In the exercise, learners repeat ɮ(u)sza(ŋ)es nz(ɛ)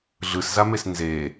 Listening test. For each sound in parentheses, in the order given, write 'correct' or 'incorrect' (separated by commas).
incorrect, incorrect, incorrect